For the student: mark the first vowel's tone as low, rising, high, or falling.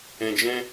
low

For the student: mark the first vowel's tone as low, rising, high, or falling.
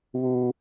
high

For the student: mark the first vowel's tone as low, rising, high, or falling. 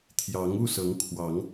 rising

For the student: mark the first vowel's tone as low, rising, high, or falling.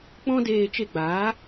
high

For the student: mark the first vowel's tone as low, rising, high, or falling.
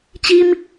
high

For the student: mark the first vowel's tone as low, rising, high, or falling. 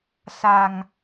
low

